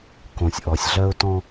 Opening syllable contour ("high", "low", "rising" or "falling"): low